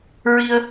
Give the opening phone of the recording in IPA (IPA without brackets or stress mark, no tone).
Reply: ɹ